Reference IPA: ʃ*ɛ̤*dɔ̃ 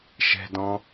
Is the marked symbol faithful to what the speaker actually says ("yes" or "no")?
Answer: yes